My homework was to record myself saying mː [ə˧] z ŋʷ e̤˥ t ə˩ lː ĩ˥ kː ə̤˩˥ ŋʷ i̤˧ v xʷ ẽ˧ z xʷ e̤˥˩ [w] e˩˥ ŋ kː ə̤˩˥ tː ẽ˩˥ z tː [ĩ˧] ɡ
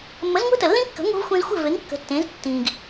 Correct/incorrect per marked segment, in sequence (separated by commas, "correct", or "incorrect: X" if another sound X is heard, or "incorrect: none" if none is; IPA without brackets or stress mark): incorrect: ə˩˥, incorrect: v, incorrect: ĩ˩